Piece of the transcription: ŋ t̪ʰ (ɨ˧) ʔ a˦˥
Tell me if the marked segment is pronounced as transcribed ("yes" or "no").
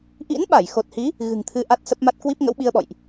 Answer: yes